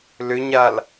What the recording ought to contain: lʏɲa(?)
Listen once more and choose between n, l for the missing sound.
l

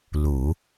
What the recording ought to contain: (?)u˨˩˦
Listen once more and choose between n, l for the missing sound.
l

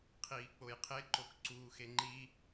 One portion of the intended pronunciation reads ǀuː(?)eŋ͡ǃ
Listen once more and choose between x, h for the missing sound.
x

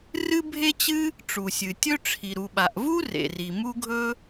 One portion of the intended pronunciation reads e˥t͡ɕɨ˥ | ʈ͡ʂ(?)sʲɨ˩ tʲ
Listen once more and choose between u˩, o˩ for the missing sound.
u˩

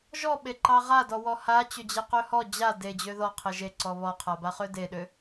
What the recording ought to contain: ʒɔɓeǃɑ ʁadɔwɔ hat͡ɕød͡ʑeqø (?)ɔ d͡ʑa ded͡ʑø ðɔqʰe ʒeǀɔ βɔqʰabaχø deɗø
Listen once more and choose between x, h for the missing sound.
h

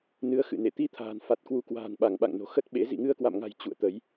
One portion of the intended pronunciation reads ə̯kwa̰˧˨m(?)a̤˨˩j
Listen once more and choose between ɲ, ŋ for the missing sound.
ŋ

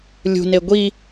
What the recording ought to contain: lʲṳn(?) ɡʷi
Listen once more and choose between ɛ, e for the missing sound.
e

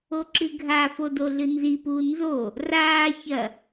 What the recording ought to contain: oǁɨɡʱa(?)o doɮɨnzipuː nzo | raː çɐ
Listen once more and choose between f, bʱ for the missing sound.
f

